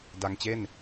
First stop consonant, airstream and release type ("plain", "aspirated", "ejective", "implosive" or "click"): plain